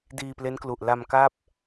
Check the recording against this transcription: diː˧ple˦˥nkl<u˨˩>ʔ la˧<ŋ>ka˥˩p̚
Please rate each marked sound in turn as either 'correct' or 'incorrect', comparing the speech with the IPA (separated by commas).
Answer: correct, incorrect